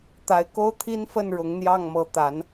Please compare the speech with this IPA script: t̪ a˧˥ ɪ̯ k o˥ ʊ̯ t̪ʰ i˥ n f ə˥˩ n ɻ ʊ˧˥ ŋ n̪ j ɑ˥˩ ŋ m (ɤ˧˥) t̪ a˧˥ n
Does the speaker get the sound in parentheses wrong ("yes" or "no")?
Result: no